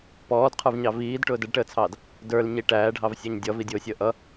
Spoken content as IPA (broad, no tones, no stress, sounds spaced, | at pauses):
p ɔː d qʰ ə˞ v ɲ ɑ v iː d ʈ ʊː d ə ɖ ʈ əː t͡sʰ ɑː d | d ə˞ l ɲ i ʈ æː ɖʱ ɑ v sʲ ɑ ɲ dʲ ʌ v i dʲ ʊː sʲ əː ʔ ʌ